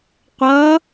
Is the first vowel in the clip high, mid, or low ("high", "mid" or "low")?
mid